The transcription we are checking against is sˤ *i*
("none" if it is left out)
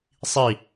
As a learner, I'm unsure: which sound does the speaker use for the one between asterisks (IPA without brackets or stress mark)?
i